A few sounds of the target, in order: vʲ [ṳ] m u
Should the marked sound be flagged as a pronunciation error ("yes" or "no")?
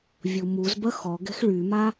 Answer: yes